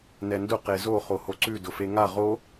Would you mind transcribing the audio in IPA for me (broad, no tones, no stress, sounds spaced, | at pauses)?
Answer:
n ɛ n d ʊ q e z o χ o h o ǀ ʉ d ʊ f e ŋ a ʁ o